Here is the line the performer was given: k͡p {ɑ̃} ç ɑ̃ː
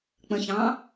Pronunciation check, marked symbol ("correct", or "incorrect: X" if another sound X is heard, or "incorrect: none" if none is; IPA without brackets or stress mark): incorrect: ə̃